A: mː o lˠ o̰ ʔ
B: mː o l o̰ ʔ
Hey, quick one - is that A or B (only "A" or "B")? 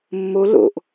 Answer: B